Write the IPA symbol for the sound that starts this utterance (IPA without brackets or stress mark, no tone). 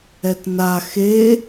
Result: ɛ